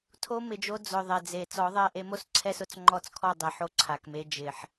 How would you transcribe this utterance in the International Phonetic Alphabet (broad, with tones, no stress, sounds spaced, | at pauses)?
tʰ o˦ m ɪ˨ d͡ʒ o˦ d͡z ʊ˨ ðˤ e˨ d͡z e˨ t͡s ɔ˨˦ ðˤ ɛ˦˨ ʔ e˦ m o˦ s ǀʰ ɛ˦ s ʊ˦ t͡s ŋ͡ǃ ɔ˦˨ t͡s kʰ ɔ˦˨ dˤ ɛ˨ ħ o˦ ǀʰ a˨ k m e˦ d͡ʒ ɪ˨ ħ